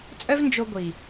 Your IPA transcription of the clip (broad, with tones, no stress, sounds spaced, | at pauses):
t͡sʼ œ˦ v n d͡ʒ o˧ ɡʷ i˨